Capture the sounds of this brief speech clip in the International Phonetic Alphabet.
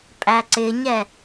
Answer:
pʼ æ ǀ ɪ ɲ ɛ

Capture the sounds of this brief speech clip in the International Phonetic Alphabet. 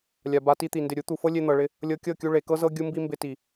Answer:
lʲ a˨ b a˧ t i˦ t̪ i˨ n d ɪ˨ ɾʲ u˨˦ t̪ u˨ f ɤ˦ lʲ e˧ n̪ ɤ˨ ɭ ɪ˧ | lʲ ɤ˧ kʲ ɤ˦˨ kʲ u˧ ɭ e˨ k ɤ˦ z ɤ˦ ɡʲ u˦ m b i˦ m b ɪ˧ t i˨

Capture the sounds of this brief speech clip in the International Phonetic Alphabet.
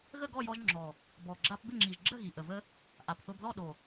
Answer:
ɣ ə˥˨ ɡ ɔ˥˨ j ɔ˧ ʒ ŋ͡ǁ ɔ˨˩ | b ɔ˨˩ ɡ͡ǁ a˧ p b ɪ˥˨ ŋ͡ǁ i˨˩ ʒ ɡ͡ǁ ə˥˨ ɣ i˨˩ ʔ ə˨˩ v ə˧ | ʔ a˨˩ p θ o˧ b ð ɔ˥˨ ɗ o˨˩

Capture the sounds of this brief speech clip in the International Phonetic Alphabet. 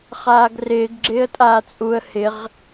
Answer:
χ aː ɡ r ɪː ɡ ɡ͡ǁ ɪː ə̯ tʼ aː t͡sʼ u ə̯ h ɪ ʁ

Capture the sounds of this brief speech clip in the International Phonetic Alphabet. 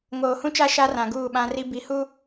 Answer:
ŋ oː˨ h ũ˦ t͡ʃ a˦ ʃ a˦ r ã˨ ɡ uː˦˨ ɓ ã˦ r i˦ b i˨˦ h u˦

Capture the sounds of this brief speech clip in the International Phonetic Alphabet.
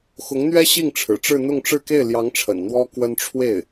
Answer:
x ʊ˧˥ ŋ n̪ ɥ ɛ˥ ɕ i˥˩ ŋ ʈ͡ʂʰ ɻ̩˨˩ ʈ͡ʂ ɻ̩˥˧ n̪ ʊ˥˧ ŋ ʈ͡ʂ ɻ̩˥˧ k e˥˩ ɪ̯ l j ɑ˧˥ ŋ ʈ͡ʂʰ ə̰˨˩ n n̪ w ɔ˥ k w ə˥ n ʈ͡ʂʰ w e˥˩ ɪ̯

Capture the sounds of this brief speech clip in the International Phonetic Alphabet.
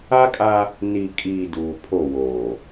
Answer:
a˦ kʼ a˦ | n i˨ kʼ iː˨ d uː˨ pʰ o˦˨ w oː˨

